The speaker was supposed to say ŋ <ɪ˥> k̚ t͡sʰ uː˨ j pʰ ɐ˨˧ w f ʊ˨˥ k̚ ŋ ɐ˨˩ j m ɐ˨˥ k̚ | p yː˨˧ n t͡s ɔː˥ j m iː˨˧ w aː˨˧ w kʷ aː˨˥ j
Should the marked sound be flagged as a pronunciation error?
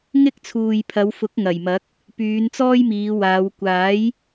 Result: no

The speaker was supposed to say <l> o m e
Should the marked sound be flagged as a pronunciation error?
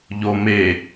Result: yes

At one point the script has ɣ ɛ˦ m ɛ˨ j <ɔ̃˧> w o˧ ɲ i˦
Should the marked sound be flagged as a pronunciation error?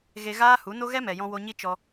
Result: no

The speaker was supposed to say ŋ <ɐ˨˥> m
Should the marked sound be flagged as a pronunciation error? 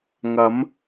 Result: yes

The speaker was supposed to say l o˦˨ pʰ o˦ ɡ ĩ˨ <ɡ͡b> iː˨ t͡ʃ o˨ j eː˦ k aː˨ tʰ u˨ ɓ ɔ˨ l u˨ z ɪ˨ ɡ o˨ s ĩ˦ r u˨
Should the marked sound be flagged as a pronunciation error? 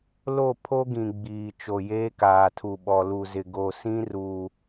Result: no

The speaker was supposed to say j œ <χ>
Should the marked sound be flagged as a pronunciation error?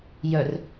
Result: yes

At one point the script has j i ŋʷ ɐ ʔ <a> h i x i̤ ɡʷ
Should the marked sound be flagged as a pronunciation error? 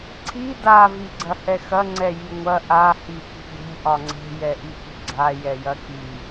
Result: no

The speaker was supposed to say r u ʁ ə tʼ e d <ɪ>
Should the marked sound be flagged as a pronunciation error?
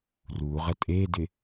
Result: no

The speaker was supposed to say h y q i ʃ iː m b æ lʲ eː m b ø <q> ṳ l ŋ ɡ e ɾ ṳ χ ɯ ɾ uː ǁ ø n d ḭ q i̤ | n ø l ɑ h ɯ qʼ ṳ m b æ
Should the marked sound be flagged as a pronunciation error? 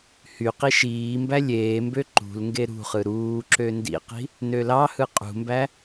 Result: yes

